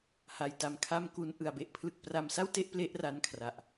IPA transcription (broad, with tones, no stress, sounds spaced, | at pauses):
h a˨˩ j t a˨˩ m kʰ a˧ m k u˦˥ n ʔ ɯ˨˩ a̯ b e˥˩ ʔ pʰ l ɯ˦˥ k̚ p r a˥˩ m s a˥˩ w t e˥˩ ʔ p l e˦˥ ʔ r a˦˥ n kʰ r a˨˩ ʔ